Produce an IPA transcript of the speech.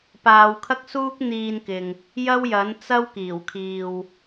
p aː˨˧ w kʰ ɐ˥ k̚ s uː˥ k̚ n̪ iː˧ n k ɪ˨ ŋ | j ɐ˥ w j ɐ˨˥ n t͡s ɐ˥ w k iː˨˩ w kʰ iː˨ w

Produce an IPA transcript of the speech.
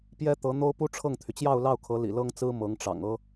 p j ɛ˥ t̪ ɤ˧˥ n̪ o˥ ʊ̯ p u˥ ʈ͡ʂʰ ɤ˥˩ ŋ t̪ʰ y˩ t͡ɕ j ɑ˥˧ ʊ̯ l ɑ˥˩ ʊ̯ kʰ ɤ˧˥ l ḭ˨˩ l ɤ˥ ŋ t͡s ɹ̩˥ m ɤ˧˥ ŋ ʈ͡ʂ ɑ̰˨˩ ŋ ɤ˥

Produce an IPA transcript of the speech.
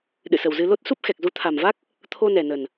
ɗ ɨ̰˧˨ s ə˨˩ w z ɨ˧ l o˦˥ t̚ s u˦˥ p̚ x ɛ˨˩ k̚ z u˨˦ t̪ʰ a˨˩ m v a˦˥ k̚ | t̪ʰ o˧ n ɛ˨˩ n ə˨˩ n

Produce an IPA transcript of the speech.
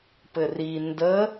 p ɘ r i n d ə

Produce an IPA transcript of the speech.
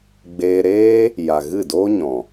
ɡ͡b eː˧ ɾ eː˦ | j a˨ ɣ ɨ˦˨ d oː˦ ɲ ɔ̃˨

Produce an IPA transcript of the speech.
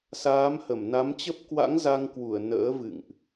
s aː˨˦ m h ə˧˩ m n a˨˦ m t͡ɕ ə˦˥ p̚ k w a̰˧˥ ŋ z a˧ ŋ k w u˧˩ ə̯ n ə̰ː˧˥ v ɨ̰˧˨ ŋ ʔ

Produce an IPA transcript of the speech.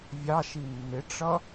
vʲ ɑ ʃ i mː ɪ ʈ͡ʂ ʌ

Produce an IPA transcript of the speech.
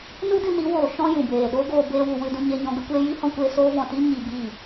n u˦ d ɨ˧ n i˨˦ w oː˨ ʃ ɔ̃˧ j ũ˨ b eː˨ ɗ oː˦ ɡ oː˧ b eː˦ w u˧ w ɨ˧ d ũ˧ ɲ e˧ ɲ ɔ̃˧ ɡ ə˦ kʷ eː˦ j iː˦ h ɔ̃˧ kʷ eː˧ s oː˧ v ɔ̃˨ t i˧ ɲ i˧ b iː˦˨

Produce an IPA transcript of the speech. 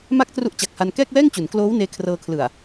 m a˥˩ k̚ t r u˦˥ ʔ t͡ɕ a˨˩ k̚ h a˧ n k ɛː˥˩ k̚ w ɛː˥˩ ŋ t͡ɕ u˩˦ n k l oː˦˥ w n eː˧ kʰ r ɤː˧ kʰ l ɯ˨˩ a̯

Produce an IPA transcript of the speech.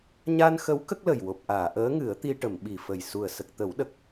ɲ a˧ n x ə˧˥ w k ə˦˥ k̚ l ə˨˩ j w o˨˩ p̚ ʔ aː˨˩˨ ʔ əː˧˥ ŋ ɨ˨˩˦ ə̯ t̪ i˧ ʈ ə˨˩˨ m ɓ i˨˩ f ə˨˩ j s u˨˩ ə̯ s ə˨˩ k̚ t̪ ə˨˩˦ w ɗ ə˨˩ k̚

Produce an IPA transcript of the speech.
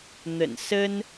n̪ ə̰˨˩ n s ə˦ n

